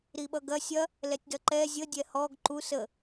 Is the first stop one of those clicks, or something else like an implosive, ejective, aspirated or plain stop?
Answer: implosive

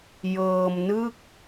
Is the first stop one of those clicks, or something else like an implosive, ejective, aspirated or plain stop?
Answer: plain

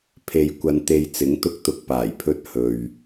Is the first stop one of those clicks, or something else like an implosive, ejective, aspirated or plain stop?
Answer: aspirated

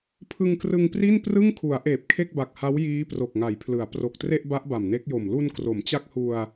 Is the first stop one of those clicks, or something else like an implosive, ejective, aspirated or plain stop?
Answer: aspirated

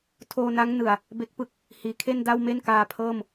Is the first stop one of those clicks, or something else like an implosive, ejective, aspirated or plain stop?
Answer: aspirated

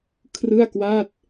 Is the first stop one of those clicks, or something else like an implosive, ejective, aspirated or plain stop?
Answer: aspirated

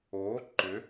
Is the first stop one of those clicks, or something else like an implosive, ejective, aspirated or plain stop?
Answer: click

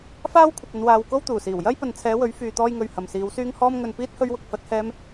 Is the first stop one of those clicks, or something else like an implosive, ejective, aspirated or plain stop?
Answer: aspirated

